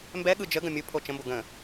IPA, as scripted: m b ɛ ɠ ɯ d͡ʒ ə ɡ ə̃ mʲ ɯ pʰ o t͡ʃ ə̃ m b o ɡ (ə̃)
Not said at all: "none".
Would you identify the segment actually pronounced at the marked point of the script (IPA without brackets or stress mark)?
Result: ə̃